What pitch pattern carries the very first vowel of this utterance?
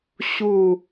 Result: falling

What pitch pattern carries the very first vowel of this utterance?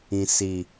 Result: low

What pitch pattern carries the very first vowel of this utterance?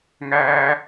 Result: low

